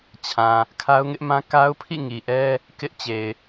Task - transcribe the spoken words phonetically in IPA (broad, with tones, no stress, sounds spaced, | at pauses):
t͡ɕʰ ã˨ | kʰ a˦ ʊ̯ ŋ ɪ˦ ʔ m ã˦ k a˦ ʊ̯ pʰ ḭ˦˨ ŋ i˨ ʔ ɛ˦ | k ɪ˦ ʔ t͡ɕ e˨ ɪ̯